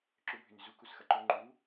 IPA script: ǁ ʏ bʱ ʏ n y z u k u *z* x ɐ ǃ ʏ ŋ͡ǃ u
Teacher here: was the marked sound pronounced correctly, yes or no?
no